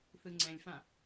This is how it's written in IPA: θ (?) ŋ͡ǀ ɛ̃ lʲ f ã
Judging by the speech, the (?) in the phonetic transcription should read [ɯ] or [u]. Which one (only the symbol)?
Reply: ɯ